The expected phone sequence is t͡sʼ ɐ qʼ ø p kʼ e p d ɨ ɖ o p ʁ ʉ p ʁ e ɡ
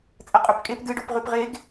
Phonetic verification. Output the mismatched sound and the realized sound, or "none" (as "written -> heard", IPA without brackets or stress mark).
ø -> ɵ